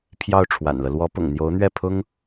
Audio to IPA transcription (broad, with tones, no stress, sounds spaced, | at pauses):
pʰ j ɑ˥˩ ʊ̯ ʈ͡ʂʰ w a̰˨˩ n l ɤ˦ l w ɔ˧˥ p ʊ̰˨˩ ŋ n̪ j o˧˥ ʊ̯ n̪ ɥ ɛ˥˩ pʰ ʊ˥ ŋ